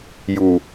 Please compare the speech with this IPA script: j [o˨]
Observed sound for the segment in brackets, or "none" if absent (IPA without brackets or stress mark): u˨